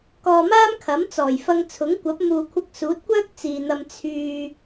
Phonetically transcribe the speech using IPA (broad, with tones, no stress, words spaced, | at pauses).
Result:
kɔː˧maː˥m kʰɐ˨˥mt͡sɔː˨˩jfɐ˧ŋ t͡sʰʊ˨˥ŋkʷɐ˨˥p̚muː˨kʷʰɐ˧k̚ suː˨˥t̚kʷœː˥k̚ t͡siː˨n̪ɐ˧m t͡sʰyː˧